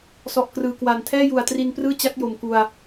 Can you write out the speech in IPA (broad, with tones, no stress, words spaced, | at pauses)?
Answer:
sɔ˨˩ʔkrɯː˨˩kwa˨˩n tʰɛː˥˩ju˨˩a̯tri˧nprɯː˥˩ t͡ɕa˦˥k̚jo˨˩mku˧a̯